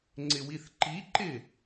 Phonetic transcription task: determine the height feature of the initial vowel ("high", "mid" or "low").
high